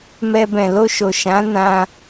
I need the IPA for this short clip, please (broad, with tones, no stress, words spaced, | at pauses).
mɛ˧bɛ̃˨lo˧ʃo˨ ʃã˨˦nã˧